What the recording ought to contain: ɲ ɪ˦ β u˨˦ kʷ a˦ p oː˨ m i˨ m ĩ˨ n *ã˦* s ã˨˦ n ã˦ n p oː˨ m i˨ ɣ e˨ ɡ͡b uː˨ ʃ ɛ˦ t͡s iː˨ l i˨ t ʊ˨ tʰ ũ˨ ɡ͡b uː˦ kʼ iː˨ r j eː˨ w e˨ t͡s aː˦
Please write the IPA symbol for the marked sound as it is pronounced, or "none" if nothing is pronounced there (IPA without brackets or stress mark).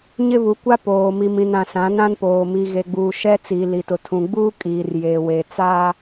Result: ã˨